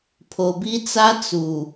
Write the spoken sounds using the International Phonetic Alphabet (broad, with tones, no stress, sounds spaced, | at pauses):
pʰ o˨ b i˦ t͡s a˦ t͡s u˨